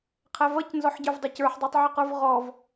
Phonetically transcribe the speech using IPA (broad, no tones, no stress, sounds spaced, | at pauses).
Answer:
qʰ æ v ʌ c n z ɔ ħ ɟ ə˞ v dˤ ɪ c ə˞ ħ dˤ æ tˤ ʕ ə q ə˞ v ʁ ɔ v